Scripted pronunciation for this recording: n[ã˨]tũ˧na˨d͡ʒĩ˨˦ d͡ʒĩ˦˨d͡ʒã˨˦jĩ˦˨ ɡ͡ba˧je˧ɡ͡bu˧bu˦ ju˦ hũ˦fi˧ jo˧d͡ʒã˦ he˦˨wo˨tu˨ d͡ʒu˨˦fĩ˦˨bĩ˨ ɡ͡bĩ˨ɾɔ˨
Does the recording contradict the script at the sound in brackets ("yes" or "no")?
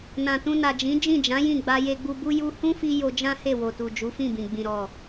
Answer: no